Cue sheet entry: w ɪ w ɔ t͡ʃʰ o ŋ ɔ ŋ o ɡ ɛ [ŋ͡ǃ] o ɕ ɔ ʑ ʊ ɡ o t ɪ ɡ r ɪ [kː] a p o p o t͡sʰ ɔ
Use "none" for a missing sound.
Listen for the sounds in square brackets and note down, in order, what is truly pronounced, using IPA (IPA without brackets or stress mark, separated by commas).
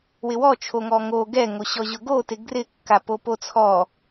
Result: ŋ, kː